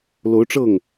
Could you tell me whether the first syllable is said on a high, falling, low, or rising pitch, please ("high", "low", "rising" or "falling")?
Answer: rising